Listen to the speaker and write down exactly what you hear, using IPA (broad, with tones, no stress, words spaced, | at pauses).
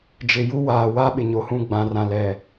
d͡ʒɪ˨ ju˦waː˨ wa˦ɓɪ˨ ɲo˨hũ˦˨ ɡ͡bã˨rã˨lɛ˨